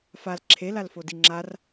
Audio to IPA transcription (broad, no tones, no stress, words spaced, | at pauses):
fal ǁʰe lalfodiŋ͡ǁar